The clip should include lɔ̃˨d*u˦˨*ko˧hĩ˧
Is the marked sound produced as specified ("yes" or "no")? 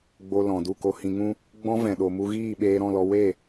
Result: yes